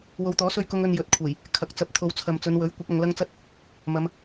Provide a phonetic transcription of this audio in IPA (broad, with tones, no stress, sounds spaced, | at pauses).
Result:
w o˨˧ w t̪ ɔː˨˥ s ɵ˥ ɥ k ʊ˥ ŋ ɵ˧ n j ɵ˨˥ t̚ kʷʰ e˨˩ j | kʰ ɐ˨ k̚ t͡s ɐ˧ p̚ t̪ʰ o˨˧ w t͡sʰ ɐ˨ m t͡s ɵ˨˧ n w ɵ˨˥ ɥ kʷ ɐ˨˥ k̚ ɐ˨˧ ŋ l ɐ˥ ŋ t͡s ɐ˥ t̚ | m ɐ˨˧ m